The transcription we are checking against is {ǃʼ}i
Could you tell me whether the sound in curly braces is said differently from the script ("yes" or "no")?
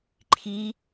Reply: yes